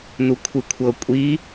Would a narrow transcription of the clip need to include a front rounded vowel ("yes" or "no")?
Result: no